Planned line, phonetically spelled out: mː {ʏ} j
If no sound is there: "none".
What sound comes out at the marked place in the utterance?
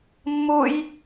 u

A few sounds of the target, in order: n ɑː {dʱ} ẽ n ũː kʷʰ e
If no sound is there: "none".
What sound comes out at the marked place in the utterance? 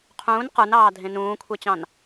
dʱ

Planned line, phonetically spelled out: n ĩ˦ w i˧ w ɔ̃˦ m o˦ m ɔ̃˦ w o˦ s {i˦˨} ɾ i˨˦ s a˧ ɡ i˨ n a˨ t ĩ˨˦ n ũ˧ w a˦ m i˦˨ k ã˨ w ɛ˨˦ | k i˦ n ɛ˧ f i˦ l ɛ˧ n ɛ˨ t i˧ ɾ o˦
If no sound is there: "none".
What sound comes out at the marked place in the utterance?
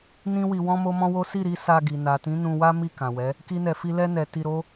i˦˨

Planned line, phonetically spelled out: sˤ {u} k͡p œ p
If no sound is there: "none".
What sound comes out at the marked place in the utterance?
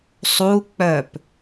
u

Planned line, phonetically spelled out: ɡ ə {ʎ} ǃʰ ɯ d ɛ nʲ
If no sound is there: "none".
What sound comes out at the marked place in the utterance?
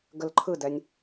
l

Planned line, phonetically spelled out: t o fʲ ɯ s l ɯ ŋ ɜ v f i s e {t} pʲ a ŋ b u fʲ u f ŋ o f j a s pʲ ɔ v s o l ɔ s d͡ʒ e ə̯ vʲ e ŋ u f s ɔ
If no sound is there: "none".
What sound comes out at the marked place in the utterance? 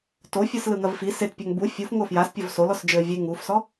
t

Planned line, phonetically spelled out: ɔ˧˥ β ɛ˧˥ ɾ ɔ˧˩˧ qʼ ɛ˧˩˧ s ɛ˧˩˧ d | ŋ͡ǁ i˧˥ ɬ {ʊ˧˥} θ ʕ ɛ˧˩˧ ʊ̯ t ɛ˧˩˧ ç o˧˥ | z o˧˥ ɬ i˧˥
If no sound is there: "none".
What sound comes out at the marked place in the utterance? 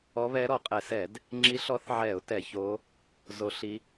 ɔ˧˥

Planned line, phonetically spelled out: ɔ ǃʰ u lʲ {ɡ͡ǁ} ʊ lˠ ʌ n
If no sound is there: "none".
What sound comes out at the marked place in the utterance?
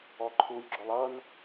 ɡ͡ǁ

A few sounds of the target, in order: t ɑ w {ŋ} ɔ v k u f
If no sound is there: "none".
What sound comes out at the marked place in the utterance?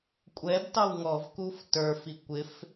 ŋ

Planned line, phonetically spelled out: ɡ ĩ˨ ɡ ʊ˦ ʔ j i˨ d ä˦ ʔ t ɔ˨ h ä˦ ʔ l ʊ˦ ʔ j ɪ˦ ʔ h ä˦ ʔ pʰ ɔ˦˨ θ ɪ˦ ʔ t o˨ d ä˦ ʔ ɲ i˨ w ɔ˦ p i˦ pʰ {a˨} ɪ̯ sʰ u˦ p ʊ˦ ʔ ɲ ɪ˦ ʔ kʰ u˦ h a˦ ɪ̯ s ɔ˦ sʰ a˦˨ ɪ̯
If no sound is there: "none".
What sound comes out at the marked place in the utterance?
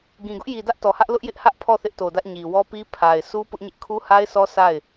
a˨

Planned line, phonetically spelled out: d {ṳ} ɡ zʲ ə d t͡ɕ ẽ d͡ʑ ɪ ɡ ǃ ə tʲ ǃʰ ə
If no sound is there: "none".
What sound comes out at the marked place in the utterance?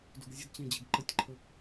ṳ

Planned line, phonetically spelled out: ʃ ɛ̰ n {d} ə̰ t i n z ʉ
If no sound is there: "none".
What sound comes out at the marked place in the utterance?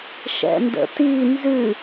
d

